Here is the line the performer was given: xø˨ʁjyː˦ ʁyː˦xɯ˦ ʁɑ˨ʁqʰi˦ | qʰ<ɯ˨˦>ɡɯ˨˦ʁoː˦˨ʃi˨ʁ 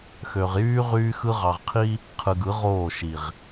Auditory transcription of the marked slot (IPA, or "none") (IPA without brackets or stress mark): ɯ˨